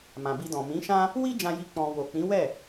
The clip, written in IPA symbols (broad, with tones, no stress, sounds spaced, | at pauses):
m ã˨ b i˧ d ɔ̃˨ m ĩ˨˦ ʃ ã˦ | w i˦ d͡ʒ ã˧ j i˧ k͡p ɔ̃˧ w o˨ k͡p ĩ˨˦ w ɛ˦˨